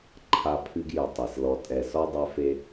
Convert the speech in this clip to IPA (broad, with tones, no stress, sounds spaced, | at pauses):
ǃʰ a˦ pʰ ɨ˦ ɡ j ɨ˨ tˤ e˩ s l ɔ˨ tʼ ɛ˨ s ɔ˥ dˤ ɛ˦ f e˦